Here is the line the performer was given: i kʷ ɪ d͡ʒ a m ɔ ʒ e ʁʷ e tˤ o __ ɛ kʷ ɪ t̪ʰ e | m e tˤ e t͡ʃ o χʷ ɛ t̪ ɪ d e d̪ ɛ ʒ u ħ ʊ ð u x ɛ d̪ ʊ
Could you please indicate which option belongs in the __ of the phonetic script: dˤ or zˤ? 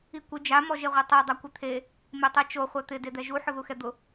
dˤ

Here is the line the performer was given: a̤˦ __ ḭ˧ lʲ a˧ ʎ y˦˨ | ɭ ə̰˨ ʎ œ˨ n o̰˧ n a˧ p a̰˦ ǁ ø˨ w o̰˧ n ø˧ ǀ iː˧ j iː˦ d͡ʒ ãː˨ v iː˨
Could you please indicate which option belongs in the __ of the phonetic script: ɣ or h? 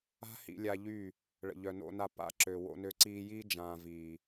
h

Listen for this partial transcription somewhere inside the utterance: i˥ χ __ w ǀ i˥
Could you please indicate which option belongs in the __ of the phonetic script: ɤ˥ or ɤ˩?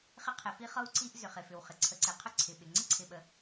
ɤ˥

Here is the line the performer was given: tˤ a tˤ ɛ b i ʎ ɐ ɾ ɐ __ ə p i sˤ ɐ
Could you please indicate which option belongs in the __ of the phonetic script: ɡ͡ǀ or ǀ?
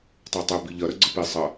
ɡ͡ǀ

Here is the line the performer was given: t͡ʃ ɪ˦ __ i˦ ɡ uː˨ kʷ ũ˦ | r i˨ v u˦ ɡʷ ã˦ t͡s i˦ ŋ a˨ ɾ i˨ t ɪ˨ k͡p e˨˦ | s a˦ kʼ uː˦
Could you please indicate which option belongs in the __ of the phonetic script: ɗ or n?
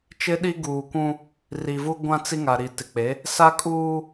ɗ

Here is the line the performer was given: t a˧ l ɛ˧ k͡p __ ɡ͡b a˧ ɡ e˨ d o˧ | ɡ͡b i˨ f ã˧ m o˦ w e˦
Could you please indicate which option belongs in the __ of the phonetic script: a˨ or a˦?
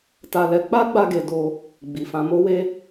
a˦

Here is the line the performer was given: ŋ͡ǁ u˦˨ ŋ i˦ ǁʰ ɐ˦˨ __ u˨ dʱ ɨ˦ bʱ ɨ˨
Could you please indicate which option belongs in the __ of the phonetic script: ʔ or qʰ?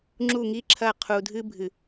qʰ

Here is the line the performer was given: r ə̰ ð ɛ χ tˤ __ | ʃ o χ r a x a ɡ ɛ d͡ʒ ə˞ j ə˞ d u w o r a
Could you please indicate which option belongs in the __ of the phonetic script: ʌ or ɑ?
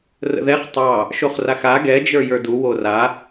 ɑ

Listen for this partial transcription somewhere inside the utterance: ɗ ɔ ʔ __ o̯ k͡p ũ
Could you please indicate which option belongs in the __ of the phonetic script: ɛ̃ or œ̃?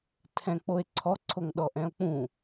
ɛ̃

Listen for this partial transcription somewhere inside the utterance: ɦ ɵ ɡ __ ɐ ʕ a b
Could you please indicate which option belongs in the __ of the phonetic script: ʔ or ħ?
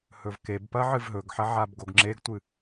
ħ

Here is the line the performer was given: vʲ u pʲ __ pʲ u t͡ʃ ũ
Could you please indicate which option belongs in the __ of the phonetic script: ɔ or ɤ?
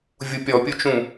ɔ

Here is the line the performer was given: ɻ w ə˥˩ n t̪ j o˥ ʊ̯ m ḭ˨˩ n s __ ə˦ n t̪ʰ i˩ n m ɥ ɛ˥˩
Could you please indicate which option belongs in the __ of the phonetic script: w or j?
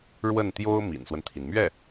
w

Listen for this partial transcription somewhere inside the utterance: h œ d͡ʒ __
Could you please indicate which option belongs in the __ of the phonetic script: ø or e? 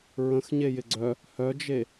e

